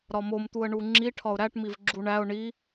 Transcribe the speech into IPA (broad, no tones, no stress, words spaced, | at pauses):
ɾɒmomt̪uə̯ ɳuŋ͡ǁi ʈʰɒʊ̯ɾæʈmiv ɡ͡ǁuɳæʊ̯ ɳi